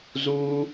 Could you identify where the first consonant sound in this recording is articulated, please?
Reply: alveolar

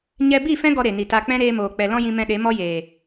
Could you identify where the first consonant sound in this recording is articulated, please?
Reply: palatal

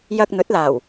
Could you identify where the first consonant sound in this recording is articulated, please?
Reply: palatal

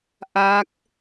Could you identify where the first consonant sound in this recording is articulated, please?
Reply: glottal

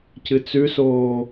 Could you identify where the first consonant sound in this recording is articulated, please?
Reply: palatal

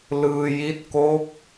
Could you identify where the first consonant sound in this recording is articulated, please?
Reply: alveolar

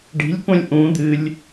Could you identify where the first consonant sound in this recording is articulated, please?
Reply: retroflex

